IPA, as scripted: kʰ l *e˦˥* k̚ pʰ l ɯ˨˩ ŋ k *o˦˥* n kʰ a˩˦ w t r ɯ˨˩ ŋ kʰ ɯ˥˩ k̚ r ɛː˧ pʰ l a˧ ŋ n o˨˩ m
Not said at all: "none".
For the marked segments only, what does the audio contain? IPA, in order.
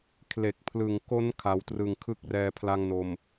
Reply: e˨˩, o˦˥

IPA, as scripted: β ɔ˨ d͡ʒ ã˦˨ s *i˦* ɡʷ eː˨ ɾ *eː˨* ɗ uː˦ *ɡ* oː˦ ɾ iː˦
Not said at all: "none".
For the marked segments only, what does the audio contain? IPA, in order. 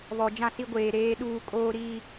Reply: i˦, eː˦, kʼ

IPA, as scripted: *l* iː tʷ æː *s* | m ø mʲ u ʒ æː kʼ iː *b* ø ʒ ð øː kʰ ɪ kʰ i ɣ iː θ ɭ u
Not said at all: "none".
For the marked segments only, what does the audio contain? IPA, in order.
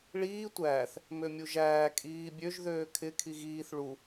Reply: ɭ, θ, bʲ

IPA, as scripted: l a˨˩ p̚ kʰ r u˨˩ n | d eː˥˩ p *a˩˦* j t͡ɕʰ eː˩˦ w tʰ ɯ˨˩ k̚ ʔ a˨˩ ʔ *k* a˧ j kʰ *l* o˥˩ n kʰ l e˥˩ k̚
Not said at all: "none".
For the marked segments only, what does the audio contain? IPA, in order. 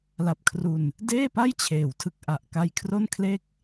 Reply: a˥˩, k, r

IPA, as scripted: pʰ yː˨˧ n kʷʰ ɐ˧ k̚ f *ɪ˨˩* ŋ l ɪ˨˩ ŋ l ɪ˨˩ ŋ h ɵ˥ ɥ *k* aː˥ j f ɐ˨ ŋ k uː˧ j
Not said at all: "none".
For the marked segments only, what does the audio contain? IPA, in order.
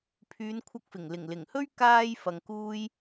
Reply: ɪ˨˩, k

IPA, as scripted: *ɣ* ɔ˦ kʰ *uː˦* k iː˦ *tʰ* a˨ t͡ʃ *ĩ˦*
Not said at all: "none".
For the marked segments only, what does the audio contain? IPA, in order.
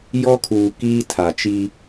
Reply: j, uː˨, tʰ, i˦

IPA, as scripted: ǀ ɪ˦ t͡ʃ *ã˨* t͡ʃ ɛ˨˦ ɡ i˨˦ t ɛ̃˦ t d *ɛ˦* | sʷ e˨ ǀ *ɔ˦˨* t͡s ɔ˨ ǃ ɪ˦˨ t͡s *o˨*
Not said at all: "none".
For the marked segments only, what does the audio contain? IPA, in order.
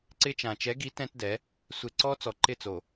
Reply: ã˨, ɛ˨˦, ɔ˦, o˨

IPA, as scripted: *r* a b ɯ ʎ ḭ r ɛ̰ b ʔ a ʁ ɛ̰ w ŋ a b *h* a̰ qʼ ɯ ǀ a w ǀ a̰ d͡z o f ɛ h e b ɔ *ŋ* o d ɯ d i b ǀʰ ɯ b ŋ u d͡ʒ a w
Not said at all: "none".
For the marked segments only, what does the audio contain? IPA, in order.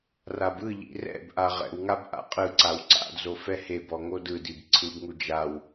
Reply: r, ʔ, ŋ

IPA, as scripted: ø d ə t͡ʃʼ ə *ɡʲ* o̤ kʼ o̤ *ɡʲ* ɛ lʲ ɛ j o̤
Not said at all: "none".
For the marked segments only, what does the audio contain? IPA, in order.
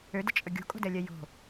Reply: ɡʲ, d

